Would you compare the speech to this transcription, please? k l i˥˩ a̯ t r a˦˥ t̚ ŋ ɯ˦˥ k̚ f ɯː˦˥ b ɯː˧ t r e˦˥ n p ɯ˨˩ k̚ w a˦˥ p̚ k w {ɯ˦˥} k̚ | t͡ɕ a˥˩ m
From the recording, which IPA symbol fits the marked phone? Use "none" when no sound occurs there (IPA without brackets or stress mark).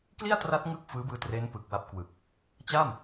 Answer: ɯ˨˩